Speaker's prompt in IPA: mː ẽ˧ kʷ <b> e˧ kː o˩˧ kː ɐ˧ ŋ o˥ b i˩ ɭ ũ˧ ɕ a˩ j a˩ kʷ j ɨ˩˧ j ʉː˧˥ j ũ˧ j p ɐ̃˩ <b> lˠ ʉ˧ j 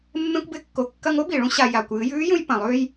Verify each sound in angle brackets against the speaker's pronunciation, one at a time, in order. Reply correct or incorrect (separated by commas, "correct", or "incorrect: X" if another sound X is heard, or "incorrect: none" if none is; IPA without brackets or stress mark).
correct, incorrect: none